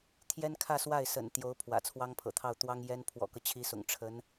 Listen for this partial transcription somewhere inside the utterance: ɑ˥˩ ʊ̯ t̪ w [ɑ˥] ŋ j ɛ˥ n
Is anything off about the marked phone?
no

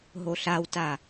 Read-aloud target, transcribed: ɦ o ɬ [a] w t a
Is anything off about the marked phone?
no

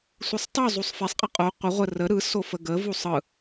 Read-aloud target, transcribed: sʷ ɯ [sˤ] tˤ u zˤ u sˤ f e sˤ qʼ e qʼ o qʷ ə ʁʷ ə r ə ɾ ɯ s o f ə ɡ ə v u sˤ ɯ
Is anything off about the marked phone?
no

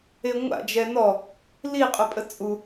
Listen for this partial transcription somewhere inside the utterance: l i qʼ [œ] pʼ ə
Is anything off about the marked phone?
no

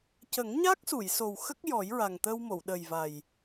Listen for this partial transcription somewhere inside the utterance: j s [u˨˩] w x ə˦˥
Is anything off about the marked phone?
yes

